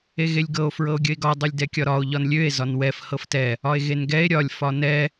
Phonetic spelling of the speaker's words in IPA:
eɣelʲɡɤo̯ fɹɤo̯ɡʲəe̯ɡɒ dˤɤlʲdɛkʲɒɾɒo̯ ʎɒnlʲøe̯ zɒnwɛf hɤftɛ | ɒe̯ɣenɡɛe̯ ɾʲɒlʲ fɒnɛ

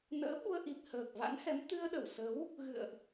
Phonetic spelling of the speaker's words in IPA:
nə̰ː˧˥ɓu˧ə̯ʔi˨˩p̚ həː˨˩k̚va̰˧˥nhɛ˨˦m t̪ɨ˧ə̯ɗə˧˩wsə˨˦w | ɣɨ̰˧˨ə̯ʔ

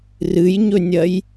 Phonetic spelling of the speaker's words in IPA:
rɨjɲɵnʲɐj

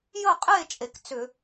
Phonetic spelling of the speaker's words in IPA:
jə˥˨qʼe˥˨ t͡ʃʼe˩kt͡sʏ˧˩˧

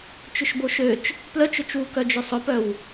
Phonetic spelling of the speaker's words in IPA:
t͡ʃʏʃboʃøt͡ʃ | plœt͡ʃʊt͡ʃwukœ d͡ʒʏsˤʊpœw

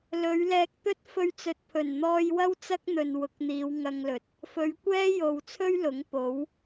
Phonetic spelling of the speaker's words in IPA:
lɵ˨˧ɥlɛː˧k̚ t̪ɵ˥t̚fɵ˧ɥt͡sɵ˨t̚ pʰɵ˨˩nn̪ɔː˧jwɐ˥w t͡sɐ˥k̚n̪ɵ˨nwʊ˨˥k̚ n̪iː˨˧wŋɐ˧ŋlɵ˨˥t̚ | fɵ˨˧ɥkʷɛː˥jo˨wt͡sʰɵ˥ɥ lʊ˨˥ŋpo˨˥w

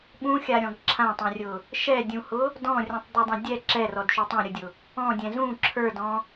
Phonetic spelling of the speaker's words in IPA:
ɓũxʲaɾʲɔ̃ɡ ǁʰãtˤɛ̃rʲʊ | ʃɛdʲũhʊ | dɔ̃rʲũtˤdˤudˤɛ̃ dʲɛ ǁɛrɔdʃu tˤɛ̃ɾʲʊdʲʊ | ɔ̃dʲɛ̃ zũ ǁʰə˞dɔ̃

